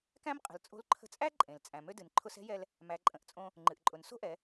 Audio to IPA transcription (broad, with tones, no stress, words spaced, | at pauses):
kæ̃˥mqʼə̤˩˧lt͡sʼo̤˧˥l ǃʰə̤˧t͡sʼæ˥ǃʼẽ˩l t͡sʼæ̃˩ mø˥ dɨ˩n ǃʰʊ˧sɛ̤˧˥jɛ˧l | mæ˩˧ǃʼə̃˩˧ʔt͡sʼõ˧ | ŋ͡ǃɨ˩ʔǃʼʊ˩n so̤˥ʔɛ˩˧